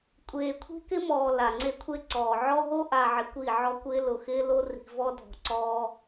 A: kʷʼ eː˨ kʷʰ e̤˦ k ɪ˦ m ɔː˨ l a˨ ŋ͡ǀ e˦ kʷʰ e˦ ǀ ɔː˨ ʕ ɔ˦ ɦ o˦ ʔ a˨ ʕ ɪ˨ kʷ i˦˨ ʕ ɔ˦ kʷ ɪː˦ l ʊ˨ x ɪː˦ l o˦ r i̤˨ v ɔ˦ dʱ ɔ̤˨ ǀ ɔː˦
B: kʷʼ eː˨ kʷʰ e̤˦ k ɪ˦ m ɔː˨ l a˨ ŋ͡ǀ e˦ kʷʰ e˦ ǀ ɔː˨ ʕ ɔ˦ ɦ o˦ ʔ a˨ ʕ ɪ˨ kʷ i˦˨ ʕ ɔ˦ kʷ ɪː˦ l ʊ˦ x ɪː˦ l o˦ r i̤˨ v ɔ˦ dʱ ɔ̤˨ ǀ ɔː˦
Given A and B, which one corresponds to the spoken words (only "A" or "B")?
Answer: A